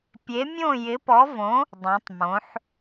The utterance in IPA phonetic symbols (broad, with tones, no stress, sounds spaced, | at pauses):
pʲ e˨˥ mʲ õ˥˨ j ɪ˨˥ p ɔ˨˥ v õ˨˥ | dˤ õ˩˧ tˤ m õ˩˧ ħ